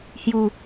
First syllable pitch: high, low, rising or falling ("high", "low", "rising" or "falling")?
low